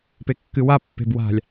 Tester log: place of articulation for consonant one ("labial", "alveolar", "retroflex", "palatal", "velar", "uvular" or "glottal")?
labial